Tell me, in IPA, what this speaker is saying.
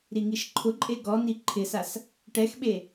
ɾiŋiʃǃʰʊǃʼe ɡɔni ǃʰɪsas | ʈɛxɓe

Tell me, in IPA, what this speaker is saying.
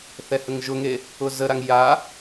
θɛhəŋʒʊŋe | ʊzəɾaŋ ja

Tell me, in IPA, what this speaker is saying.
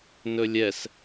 nɵlʲɛs

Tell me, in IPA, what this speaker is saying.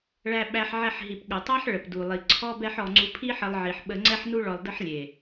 ɭæ˧ɓæ˧ħ ʕɛ˧ħɦi˨p ɠə˨tˤæ˦ħ ɭə˨pdu˨lˠi˨ ǀʰɔ˦bɛ˦ħ ɔ˧ ŋ͡ǀu˧pʰi˦ħə˧lˠʕi˨ħ ɓə˧ŋ͡ǀɛ˦ħnu˦ ɭɔ˧lˠdə˦ħlʲe˨

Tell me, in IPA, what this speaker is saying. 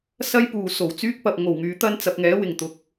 sɐ˥jpuː˨ so˨˩wt͡syː˥k̚pɐ˨p̚ŋo˨˩w ŋyː˨˧t̪ɐ˥n t͡sɐ˨p̚ŋɛː˨˥wɪ˨˩ŋ t̪ʊ˨˥k̚

